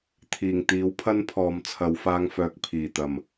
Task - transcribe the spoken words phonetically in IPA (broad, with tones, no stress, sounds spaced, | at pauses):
t̪ʰ iː˨˩ ŋ t̪ iː˨˥ w pʰ ɐ˥ n pʰ ɔː˨ m t͡sʰ ɐ˨˧ w f aː˧ ŋ f œː˨ k̚ pʰ iː˨˩ t̪ ɐ˨˩ m